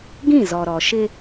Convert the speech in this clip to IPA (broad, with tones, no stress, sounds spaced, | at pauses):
ɡ ĩ˦˨ z ɔ˨ ɾ ɔ˨ ʃ ɪ˦